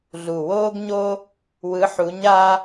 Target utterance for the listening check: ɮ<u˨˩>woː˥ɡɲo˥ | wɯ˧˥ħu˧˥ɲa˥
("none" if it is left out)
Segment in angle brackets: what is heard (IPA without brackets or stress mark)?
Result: u˨˩